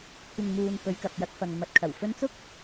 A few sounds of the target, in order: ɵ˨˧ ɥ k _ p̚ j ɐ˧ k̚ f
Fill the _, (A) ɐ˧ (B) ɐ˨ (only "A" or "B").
B